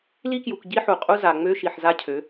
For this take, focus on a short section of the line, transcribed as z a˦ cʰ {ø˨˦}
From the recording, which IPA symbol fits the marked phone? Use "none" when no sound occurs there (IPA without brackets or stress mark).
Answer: ø˨˦